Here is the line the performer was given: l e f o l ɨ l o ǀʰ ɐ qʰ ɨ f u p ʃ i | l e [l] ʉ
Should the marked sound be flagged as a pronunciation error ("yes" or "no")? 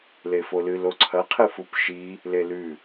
no